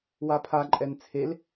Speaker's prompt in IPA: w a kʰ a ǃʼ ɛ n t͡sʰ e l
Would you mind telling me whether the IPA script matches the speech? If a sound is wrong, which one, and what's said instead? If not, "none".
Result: kʰ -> pʰ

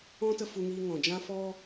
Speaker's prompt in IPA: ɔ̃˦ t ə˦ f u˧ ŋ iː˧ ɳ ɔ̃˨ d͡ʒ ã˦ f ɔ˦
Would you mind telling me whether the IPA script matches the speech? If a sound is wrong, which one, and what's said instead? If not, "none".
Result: ɳ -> ŋ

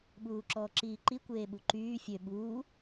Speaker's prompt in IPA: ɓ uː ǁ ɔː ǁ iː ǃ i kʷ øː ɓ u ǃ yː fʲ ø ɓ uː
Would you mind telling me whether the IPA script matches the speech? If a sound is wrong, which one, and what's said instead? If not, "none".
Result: øː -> eː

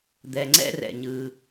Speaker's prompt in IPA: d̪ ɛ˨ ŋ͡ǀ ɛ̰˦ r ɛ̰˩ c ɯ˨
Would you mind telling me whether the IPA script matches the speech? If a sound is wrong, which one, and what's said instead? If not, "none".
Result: c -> ɲ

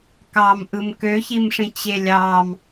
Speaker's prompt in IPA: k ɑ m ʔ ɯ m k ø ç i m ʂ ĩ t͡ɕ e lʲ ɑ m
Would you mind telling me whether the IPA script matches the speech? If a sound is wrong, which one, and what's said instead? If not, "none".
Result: none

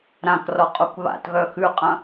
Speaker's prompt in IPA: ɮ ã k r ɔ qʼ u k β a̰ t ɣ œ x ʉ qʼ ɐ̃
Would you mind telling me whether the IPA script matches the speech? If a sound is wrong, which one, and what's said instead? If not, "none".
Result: ɮ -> ɾ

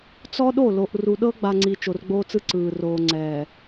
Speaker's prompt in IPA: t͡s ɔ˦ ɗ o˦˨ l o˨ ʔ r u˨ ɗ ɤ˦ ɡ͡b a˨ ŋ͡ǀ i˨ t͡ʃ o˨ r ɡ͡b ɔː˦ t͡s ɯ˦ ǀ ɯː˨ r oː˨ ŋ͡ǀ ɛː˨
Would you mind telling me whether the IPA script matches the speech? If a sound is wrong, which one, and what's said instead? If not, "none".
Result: ɔː˦ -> oː˦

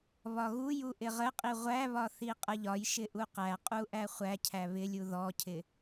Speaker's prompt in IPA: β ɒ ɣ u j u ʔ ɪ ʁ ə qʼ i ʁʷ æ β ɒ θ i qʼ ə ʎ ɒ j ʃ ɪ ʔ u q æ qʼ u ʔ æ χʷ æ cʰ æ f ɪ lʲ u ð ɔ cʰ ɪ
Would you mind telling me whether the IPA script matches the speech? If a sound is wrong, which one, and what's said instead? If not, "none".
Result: f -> β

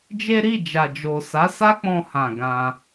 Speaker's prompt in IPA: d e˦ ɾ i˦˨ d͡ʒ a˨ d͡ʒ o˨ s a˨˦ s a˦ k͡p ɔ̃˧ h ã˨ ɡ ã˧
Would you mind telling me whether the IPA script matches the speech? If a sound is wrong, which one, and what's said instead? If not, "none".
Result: d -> d͡ʒ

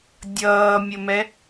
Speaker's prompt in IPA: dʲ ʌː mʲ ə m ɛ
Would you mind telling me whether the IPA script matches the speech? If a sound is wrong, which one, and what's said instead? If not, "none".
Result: none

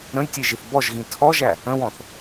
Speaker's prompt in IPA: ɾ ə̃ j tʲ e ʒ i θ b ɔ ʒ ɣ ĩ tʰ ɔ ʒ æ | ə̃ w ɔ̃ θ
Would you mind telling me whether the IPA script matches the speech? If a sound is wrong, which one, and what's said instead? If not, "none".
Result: none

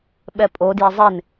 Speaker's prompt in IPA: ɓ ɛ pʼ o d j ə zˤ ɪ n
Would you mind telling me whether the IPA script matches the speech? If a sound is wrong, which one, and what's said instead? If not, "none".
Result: ə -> ɪ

